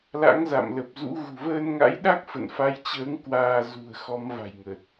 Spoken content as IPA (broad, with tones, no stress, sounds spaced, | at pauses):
l a̰˧˥ ŋ z a̰˧˨ m l ə˨˩ p̚ z ṵ˧˥ ɣ ṳ˨˩ v əː˧ n ŋ a̰˧˥ j ɗ a˦˥ k̚ f ə̰˧˨ n f a˨˦ j t͡ɕ əː˨˦ ŋ k w aː˧ z ṳ˨˩ ə̯ x ɔ˨˦ m v a̤˨˩ j ŋ ə˨˩ t̚